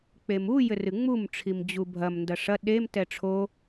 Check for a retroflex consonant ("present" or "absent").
present